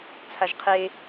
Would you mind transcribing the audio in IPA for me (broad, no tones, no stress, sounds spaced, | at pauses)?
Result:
t͡sʰ a ʒ qʰ e